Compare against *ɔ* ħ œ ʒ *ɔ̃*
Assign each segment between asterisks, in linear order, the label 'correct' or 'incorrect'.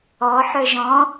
correct, correct

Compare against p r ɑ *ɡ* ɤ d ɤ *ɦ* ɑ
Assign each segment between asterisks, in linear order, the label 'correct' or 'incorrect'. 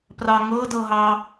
incorrect: ŋ, correct

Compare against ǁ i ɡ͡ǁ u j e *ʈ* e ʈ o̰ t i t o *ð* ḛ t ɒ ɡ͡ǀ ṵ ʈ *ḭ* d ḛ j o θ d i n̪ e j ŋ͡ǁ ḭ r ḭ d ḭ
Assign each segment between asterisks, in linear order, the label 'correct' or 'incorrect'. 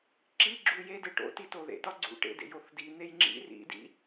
incorrect: d, correct, incorrect: ḛ

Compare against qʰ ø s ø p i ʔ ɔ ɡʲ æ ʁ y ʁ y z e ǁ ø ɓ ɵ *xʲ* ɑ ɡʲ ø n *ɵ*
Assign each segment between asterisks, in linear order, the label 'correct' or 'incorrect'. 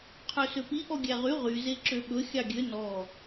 correct, incorrect: ɔ

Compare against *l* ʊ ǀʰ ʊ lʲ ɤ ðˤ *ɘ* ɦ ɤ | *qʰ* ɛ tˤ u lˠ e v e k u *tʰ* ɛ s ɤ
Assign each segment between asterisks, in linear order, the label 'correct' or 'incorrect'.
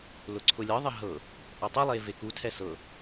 correct, correct, incorrect: ʔ, correct

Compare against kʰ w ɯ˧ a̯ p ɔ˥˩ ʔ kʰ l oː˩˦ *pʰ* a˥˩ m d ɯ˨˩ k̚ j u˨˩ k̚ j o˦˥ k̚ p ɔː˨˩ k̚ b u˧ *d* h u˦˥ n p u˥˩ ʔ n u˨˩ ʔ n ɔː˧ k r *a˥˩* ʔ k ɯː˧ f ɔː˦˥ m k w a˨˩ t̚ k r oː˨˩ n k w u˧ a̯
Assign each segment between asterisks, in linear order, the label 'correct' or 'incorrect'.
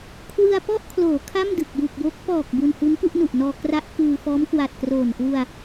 incorrect: kʰ, incorrect: n, incorrect: a˦˥

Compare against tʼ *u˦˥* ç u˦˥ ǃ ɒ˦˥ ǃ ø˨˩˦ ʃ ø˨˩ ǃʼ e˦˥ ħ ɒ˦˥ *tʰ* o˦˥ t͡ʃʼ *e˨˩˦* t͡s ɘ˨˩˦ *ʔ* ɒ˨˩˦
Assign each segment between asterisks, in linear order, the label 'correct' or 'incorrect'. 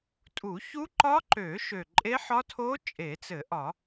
incorrect: u˨˩˦, correct, correct, correct

